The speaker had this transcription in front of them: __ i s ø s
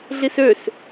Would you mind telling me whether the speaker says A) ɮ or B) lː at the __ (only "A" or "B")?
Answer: A